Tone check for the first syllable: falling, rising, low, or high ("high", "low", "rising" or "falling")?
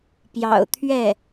low